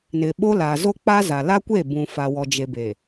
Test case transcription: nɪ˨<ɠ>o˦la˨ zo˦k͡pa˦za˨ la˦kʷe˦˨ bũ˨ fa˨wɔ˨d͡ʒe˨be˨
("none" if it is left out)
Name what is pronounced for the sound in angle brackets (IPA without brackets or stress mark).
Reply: ɓ